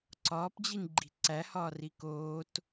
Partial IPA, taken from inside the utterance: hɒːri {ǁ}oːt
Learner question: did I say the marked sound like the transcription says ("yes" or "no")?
no